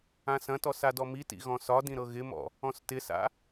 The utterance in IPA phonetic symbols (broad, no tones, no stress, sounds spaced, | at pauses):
ã s ɐ̃ t ɔ s a d ɔ m i t ḭ ɣ ɔ̃ s ɒ d ĩ ɾ ɤ ɣ ɪ m ɔ̰ | ɔ̃ s t ɪ s a̰